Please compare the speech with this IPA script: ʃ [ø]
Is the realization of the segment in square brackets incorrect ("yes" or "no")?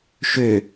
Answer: no